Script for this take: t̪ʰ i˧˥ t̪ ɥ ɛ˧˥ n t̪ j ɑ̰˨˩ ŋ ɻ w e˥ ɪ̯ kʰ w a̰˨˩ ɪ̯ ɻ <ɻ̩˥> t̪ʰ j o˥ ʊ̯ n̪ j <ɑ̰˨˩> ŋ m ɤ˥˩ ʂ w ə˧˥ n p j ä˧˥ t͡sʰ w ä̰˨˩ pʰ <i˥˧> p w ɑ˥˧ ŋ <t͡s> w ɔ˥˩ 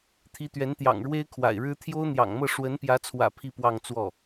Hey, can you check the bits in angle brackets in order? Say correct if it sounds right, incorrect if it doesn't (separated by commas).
correct, correct, correct, correct